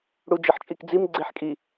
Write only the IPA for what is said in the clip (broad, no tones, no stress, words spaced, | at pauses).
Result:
ɽud͡ʒɘħt͡ʃʼikd͡zim ɡ͡ǀeħkʼi